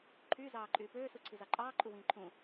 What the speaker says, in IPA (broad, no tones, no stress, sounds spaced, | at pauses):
ǃʰ yː z ɑː ǃʼ yː p øː s u ǀʰ i z ɑ ǃʼ ɑː ǃʼ u w ĩː ǃʰ ũ